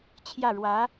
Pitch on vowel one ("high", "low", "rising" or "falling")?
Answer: falling